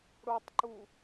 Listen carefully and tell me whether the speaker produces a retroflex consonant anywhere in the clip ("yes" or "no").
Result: yes